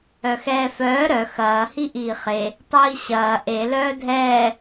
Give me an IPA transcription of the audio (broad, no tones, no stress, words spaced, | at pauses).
œxɛːfœː ɾœ xɐː hiʔiːχe | tˤiːɕɐː ʔe lœːdʱɛː